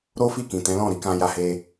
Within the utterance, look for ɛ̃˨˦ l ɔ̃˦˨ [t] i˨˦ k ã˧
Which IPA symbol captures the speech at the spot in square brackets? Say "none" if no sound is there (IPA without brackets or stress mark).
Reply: ɾ